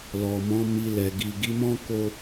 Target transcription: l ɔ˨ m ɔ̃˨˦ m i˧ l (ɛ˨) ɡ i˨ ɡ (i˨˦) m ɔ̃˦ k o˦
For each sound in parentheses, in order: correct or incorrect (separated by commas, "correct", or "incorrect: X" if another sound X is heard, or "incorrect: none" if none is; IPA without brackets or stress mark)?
correct, correct